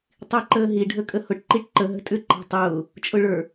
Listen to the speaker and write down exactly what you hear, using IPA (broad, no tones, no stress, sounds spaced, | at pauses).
tˤ i ǃ əː ɦ i ɖʱ ə kʼ ə h ʊ ʈ ǃ i ʈ ǃ ə ɦ ə̤ tʼ ʏ ǃ ɑ̤ tˤ ʊː | t͡ʃʼ ʊ ɭ ə˞